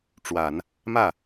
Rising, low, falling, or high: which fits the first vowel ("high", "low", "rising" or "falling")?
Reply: low